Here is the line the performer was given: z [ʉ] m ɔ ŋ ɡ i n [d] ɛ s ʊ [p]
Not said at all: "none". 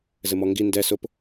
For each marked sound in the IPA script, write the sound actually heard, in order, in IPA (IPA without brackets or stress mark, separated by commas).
ɘ, d, p